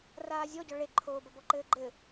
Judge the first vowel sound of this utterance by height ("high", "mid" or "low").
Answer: low